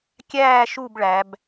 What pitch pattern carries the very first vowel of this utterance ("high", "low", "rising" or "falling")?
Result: falling